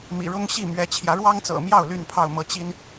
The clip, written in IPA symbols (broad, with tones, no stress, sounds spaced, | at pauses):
m ḭ˨˩ ɻ ʊ˦ ŋ ɕ i˥˨ m ɥ ɛ˨˦ t͡ɕʰ j ä˨˦ ɻ w ɑ˦ ŋ t͡s ɤ̰˨˩ m j ɑ˥˨ ʊ̯ l y˥˨ n pʰ ɑ˥˨ ʊ̯ m ɤ˨˦ t͡ɕ i˦ n